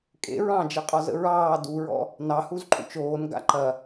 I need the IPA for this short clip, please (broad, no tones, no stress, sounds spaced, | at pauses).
kʼ ḛ ɹ ɑ̃ d͡ʒ e qʼ ɒ z ə̰ ɹ ɑː d u ɹ ɔ̰ | n ɑ h u z ǃʼ ṵ t͡ʃ oː n ɡ a̰ ǃ ɐ